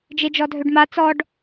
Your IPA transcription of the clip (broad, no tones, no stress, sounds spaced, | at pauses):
d͡ʒ e d͡ʒ ɔ dʱ ø ɖ m a t͡s ɔ ɖ